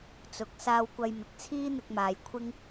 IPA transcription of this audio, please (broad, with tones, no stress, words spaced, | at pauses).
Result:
t͡sʊ˨˥k̚ saː˧wkʷɐ˧jmɪ˨k̚ t͡sʰiː˥n̪ɪ˧k̚maː˨j kʷʰɪ˥ŋ